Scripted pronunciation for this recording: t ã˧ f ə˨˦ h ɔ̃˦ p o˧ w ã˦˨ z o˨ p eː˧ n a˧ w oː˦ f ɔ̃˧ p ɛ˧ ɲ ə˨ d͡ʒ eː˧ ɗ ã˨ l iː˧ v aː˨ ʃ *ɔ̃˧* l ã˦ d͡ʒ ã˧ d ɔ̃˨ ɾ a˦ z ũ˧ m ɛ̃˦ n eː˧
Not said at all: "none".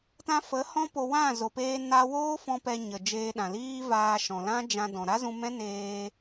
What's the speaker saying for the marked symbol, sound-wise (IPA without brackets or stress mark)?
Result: ɔ̃˨